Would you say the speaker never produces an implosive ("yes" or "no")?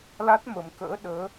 no